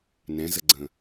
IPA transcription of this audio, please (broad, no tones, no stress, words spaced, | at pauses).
nɛ̃zəɡ͡ǀə̃